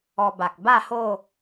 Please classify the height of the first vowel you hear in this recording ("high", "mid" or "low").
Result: mid